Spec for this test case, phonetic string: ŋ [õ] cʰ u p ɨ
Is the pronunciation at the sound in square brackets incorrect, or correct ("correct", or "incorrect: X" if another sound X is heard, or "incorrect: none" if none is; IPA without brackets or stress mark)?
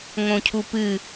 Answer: correct